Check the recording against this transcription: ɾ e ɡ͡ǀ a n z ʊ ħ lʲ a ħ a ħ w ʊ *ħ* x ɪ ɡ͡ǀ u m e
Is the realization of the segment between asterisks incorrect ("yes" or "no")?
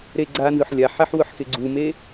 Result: no